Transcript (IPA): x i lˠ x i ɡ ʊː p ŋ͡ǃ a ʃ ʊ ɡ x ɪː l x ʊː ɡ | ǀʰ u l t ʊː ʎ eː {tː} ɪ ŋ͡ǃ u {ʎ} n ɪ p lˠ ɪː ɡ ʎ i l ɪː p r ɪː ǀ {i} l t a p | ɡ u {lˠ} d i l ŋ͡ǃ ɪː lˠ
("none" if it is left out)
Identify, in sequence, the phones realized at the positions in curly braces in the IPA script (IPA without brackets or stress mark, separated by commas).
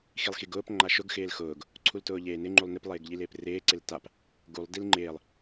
n, lˠ, ɪ, lˠ